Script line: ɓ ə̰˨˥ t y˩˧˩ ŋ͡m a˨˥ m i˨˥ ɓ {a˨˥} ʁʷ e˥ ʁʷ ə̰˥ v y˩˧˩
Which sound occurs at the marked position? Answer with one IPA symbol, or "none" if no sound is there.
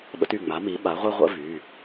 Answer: a˨˥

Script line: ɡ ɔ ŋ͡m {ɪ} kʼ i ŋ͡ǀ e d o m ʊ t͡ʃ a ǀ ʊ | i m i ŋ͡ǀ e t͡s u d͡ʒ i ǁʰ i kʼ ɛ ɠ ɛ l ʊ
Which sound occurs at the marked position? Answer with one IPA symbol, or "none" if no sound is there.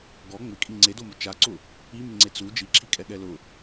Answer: ɪ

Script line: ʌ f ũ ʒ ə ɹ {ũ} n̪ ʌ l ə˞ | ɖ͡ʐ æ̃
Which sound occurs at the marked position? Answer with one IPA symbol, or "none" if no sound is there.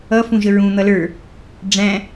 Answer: ũ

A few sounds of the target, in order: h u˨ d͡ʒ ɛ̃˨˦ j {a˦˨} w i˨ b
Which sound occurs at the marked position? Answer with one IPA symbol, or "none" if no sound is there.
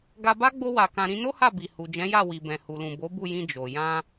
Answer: a˦˨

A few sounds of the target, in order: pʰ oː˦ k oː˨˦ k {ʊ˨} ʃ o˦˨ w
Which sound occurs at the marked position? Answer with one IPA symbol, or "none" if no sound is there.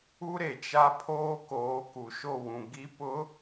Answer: u˨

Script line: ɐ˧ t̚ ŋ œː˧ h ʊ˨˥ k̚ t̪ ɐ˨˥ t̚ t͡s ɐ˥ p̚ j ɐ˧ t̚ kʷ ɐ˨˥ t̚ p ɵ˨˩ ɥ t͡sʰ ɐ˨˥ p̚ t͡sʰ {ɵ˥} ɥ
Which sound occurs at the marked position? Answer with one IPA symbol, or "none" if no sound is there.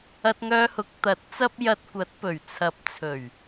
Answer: ɵ˨˩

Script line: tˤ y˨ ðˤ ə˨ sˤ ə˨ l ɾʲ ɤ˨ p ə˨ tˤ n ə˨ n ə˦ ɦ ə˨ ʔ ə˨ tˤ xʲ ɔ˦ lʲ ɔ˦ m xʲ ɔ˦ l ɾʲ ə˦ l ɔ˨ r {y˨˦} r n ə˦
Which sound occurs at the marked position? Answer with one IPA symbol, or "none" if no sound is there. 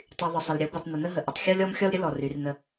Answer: y˨˦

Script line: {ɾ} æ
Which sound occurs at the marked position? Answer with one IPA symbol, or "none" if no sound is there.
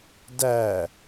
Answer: d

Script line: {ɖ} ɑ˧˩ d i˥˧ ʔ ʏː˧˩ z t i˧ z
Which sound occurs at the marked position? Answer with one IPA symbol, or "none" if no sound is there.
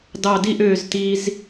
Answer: d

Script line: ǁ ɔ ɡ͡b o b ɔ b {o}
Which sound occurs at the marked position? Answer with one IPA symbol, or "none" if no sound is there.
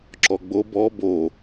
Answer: o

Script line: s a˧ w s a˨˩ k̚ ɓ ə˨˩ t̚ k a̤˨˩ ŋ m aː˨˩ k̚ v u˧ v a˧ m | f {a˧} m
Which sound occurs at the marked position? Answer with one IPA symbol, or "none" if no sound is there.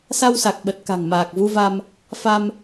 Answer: a˧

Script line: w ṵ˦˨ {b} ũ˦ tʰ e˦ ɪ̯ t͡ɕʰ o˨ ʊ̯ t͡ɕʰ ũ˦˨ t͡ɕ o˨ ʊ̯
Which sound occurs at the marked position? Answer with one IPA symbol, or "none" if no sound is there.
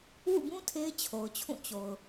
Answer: b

